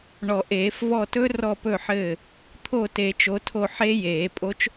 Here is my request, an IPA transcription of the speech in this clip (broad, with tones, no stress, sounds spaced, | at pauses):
ɳ ɔ˨˩˦ ʔ eː˨˩˦ f v ɔ˦˨ t ɵ˦˥ r ɔ˦˨ p ɵ˦˨ ħ ɘː˦˨ | t̪ʰ o˦˨ t e˨˩˦ t͡ʃ o˨˦ tʰ o˦˨ ħ e˦˥ j eː˨˩˦ pʼ o˦˥ t͡ʃ